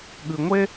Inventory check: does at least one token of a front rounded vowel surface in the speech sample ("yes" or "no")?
no